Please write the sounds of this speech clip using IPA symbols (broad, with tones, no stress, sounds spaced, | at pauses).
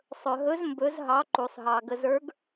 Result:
sˤ ɵ˩ ɦ ɵ˨˥ z m b ɵ˨˥ z ɦ ɑ˨˥ ǃ u˩ sˤ ɦ ɑ˩ ɡ ə˩ z ə˞˨˥ ɡ